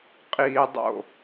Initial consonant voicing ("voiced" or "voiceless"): voiceless